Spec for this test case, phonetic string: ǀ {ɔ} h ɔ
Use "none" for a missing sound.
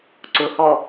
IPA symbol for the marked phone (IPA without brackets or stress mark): ʊ